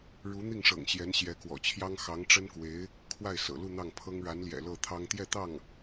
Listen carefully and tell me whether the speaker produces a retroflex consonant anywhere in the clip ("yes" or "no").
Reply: yes